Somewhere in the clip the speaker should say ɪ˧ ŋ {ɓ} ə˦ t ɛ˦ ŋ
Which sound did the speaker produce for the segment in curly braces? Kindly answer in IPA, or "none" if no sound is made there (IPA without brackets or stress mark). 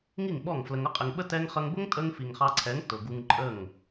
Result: ɓ